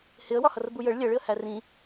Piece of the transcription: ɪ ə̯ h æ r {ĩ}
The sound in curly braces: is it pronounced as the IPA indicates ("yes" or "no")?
yes